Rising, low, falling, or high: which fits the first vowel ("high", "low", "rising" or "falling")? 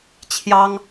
high